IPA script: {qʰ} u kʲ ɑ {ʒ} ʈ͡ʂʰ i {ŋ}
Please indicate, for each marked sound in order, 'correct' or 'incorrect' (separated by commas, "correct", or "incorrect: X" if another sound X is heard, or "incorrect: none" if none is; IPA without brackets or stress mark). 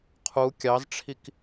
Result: correct, incorrect: z, incorrect: k